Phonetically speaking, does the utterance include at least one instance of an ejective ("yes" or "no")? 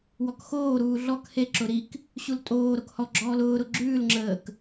yes